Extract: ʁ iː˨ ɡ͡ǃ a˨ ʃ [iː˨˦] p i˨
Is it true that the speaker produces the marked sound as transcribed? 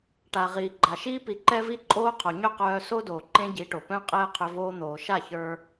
no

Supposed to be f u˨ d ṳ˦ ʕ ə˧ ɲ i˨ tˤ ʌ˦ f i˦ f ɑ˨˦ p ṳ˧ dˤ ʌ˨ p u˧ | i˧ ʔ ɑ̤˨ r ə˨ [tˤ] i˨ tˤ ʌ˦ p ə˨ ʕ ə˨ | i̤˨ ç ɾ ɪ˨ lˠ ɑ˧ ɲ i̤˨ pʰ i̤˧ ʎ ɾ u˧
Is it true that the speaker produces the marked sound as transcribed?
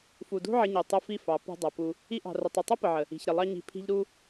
yes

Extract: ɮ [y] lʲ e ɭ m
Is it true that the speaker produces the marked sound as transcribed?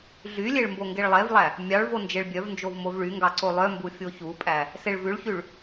yes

